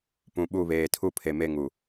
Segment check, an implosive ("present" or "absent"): present